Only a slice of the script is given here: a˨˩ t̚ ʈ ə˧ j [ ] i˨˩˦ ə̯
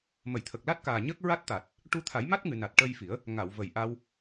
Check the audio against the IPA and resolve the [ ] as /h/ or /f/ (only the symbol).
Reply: f